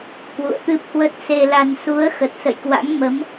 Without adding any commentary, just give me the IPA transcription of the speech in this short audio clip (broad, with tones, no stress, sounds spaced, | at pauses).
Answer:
k w ṵ˧˨ ə̯ t̪ ɨ˦˥ p̚ h w ə˦˥ t̚ s e˧ l a˧ n s u˨˦ ə̯ x ə˨˩ t̚ s ə̰˧˨ j k w a̰˧˥ ŋ m ə˨˦ m